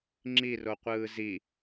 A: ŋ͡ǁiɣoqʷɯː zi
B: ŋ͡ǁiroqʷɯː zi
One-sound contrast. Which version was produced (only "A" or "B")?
B